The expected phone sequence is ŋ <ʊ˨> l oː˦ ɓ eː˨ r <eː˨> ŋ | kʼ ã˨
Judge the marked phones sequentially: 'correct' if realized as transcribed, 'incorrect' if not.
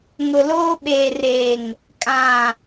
correct, correct

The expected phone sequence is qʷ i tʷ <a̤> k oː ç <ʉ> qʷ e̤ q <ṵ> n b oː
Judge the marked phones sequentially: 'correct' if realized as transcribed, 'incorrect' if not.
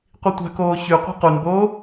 correct, correct, incorrect: u

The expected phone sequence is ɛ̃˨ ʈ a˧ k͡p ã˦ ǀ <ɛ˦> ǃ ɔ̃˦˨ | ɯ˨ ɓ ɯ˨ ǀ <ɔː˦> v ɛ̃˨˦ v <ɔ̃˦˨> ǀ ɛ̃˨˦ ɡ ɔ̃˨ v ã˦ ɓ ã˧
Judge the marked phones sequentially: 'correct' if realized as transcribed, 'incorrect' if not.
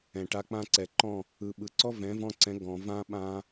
incorrect: ɛ˨, incorrect: ɔ˦, incorrect: ɔ̃˧

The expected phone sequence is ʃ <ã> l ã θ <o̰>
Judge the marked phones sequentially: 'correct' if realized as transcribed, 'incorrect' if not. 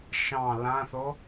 incorrect: ɑ̃, incorrect: o

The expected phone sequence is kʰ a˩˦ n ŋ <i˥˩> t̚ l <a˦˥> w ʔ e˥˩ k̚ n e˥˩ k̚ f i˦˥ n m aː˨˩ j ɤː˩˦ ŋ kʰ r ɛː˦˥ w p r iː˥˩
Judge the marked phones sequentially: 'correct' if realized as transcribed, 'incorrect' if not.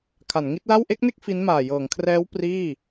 incorrect: i˦˥, incorrect: a˥˩

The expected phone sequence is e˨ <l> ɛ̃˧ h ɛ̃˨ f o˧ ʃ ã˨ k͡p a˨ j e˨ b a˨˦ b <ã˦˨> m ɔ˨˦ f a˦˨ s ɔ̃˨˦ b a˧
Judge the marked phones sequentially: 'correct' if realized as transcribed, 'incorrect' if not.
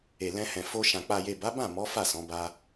correct, correct

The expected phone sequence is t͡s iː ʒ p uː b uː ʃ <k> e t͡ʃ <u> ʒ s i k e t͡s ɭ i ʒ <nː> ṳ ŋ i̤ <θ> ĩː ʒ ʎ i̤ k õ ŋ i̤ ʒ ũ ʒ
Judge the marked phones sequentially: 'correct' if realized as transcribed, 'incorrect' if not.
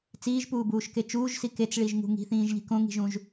correct, incorrect: uː, incorrect: ŋ, correct

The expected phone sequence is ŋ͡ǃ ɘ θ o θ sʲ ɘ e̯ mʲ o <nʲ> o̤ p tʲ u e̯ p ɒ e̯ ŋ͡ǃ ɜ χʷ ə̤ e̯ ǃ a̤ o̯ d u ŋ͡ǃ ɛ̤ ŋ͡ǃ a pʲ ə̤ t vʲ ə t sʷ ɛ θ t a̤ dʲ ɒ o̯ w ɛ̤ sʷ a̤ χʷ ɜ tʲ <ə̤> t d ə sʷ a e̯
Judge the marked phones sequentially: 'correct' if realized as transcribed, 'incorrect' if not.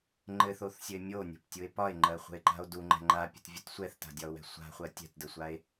correct, incorrect: ɛ̤

